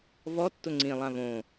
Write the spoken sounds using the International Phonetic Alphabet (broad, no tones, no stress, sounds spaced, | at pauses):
v ɔ tː ʊ ŋ͡ǀ ĩ lˠ ã v õ